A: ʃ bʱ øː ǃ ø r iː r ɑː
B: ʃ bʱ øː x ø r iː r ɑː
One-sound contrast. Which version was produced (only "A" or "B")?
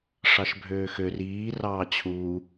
B